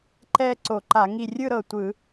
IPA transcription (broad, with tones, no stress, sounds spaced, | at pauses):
ǃ ɛ˥˧ ǀ o˧˩˧ ǃ a˧˩˧ ŋ i˧˩ rʲ ɯ˥˧ ɾ ɤ˧˩ tʷ ɯ˧˩˧